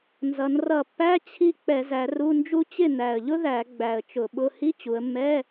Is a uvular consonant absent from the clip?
yes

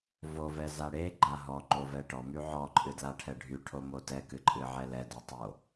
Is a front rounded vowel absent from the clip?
no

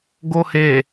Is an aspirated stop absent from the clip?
yes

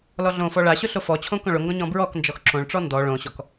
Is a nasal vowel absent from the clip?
no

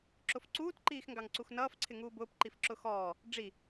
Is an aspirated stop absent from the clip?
no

